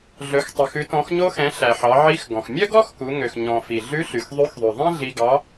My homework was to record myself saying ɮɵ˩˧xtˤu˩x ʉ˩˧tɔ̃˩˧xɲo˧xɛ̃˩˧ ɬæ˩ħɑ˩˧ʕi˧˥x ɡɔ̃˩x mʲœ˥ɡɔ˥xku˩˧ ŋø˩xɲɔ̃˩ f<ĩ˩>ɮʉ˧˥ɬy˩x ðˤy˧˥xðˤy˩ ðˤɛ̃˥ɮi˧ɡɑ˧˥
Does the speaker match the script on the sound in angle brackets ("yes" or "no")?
no